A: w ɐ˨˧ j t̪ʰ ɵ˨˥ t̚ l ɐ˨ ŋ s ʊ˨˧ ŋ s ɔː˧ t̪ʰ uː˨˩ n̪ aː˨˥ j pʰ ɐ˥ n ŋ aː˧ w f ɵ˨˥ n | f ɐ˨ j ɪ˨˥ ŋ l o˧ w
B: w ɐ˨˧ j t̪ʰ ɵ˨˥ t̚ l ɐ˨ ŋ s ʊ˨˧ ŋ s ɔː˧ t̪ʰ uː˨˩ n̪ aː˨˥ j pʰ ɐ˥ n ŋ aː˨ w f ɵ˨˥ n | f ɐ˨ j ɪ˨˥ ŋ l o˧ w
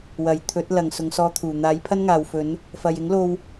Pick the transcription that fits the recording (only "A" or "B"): B